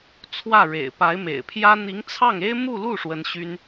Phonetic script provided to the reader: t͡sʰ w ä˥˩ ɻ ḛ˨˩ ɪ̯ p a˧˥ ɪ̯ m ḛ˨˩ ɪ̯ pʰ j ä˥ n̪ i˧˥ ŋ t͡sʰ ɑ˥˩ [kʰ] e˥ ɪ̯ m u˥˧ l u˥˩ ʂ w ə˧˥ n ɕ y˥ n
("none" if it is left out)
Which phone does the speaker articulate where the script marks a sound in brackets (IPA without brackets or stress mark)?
ŋ